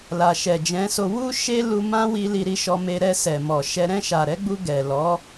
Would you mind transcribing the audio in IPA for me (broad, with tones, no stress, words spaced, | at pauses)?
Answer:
la˨ʃɛ˨d͡ʒɛ̃˨˦so˧ wu˦ ʃe˦lu˧mã˦wi˧ li˧ɾi˧ʃɔ˧me˧ ɾɛ˧sɛ˨mɔ˨ʃɛ˧ ɾɛ̃˧ʃa˨ɾɛ˨˦ɡ͡bu˧ ɡɛ˨lɔ˨˦